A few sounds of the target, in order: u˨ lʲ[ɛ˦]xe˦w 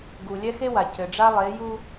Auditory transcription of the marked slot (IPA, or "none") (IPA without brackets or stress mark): ɛ˦